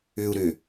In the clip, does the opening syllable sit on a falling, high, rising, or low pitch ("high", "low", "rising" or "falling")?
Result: low